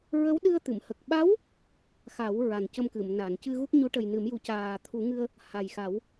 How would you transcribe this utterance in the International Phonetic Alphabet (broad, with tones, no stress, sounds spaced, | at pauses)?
ɹ ə˧˥ w ɗ ɨ˧ ə̯ t̪ ɨ˨˩˨ m h ə˨˩ k̚ ɓ a˧˥ w | x a˨˩˦ w ɹ a˨˩ n c ə˧ m k ɨ˨˩˨ m n a˨˩˨ n c ɨ˧ ɣ u˦˥ k̚ ɲ u˧˥ ʈ ə˨˩ j n ɨ˨˩˦ m j u˨˩˦ c aː˨˩ t̪ʰ u˨˩˦ ŋ ɨ˧ ə̯ | h a˨˩ j x a˨˩˦ w